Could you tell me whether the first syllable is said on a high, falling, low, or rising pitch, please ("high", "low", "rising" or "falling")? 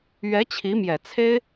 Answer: rising